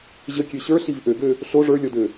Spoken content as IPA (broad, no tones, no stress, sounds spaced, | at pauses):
ʑ ə kʲ ø ɕ ə˞ ɬ i v ʔ ø ɡ ø | ɬ o ʐ ə˞ lʲ ɔ d ø